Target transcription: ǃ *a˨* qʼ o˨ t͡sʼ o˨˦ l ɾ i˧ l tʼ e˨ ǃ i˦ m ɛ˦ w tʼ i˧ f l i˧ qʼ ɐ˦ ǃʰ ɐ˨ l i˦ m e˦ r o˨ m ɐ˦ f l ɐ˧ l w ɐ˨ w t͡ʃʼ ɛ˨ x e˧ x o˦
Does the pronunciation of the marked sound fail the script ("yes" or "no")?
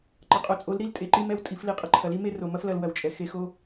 yes